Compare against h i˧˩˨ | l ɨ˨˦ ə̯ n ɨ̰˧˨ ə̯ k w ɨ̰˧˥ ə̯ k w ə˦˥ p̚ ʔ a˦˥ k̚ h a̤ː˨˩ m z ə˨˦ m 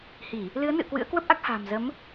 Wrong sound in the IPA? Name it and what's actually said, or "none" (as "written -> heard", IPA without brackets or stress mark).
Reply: none